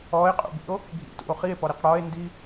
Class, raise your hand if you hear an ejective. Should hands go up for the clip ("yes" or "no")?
yes